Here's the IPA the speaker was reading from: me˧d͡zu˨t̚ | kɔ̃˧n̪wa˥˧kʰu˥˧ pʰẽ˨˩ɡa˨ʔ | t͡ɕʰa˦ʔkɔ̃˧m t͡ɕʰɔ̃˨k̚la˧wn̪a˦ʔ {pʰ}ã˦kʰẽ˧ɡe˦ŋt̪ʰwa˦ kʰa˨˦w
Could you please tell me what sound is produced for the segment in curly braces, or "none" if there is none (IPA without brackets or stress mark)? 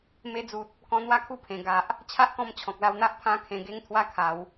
pʰ